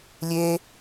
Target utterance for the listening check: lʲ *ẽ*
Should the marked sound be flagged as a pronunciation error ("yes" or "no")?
yes